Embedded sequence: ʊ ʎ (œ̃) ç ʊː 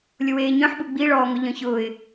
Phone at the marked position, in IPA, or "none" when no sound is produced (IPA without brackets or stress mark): œ̃